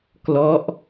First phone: k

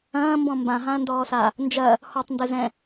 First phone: ɐ̃ː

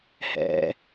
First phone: h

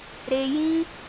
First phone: ɾ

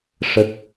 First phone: ʂ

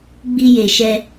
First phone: ɡ͡b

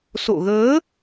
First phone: s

